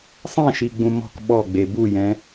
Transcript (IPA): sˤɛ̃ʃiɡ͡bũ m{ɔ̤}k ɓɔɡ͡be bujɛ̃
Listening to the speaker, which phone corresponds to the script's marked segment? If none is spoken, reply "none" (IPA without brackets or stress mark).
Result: ɔ̤